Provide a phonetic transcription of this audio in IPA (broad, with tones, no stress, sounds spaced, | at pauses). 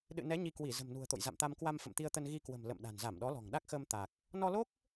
ɗ ɨ̰˧˨ n ɛ˨˦ ɲ i˧ k w i˧˩ z ə̤˨˩ m n ṳ˨˩ ə̯ t̪ o̰˧˨ j z a̰˧˨ m t̪ a˧ m k w a˧ m f ə̰˧˨ m t̪ i˧ ə̯ t̪ ə˧ n ɣ i˧ k w ə̤˨˩ m l ə̰˧˨ m ɗ a̤˨˩ n z a˧˩ m ɗ ɔ˨˦ l ɔ̤˨˩ ŋ ɗ a˦˥ k̚ x əː˧ m t̪ a˨˩ k̚ | n ɔ˧ l o˦˥ k̚